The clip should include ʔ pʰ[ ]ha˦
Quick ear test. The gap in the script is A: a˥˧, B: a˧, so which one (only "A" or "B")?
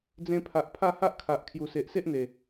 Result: A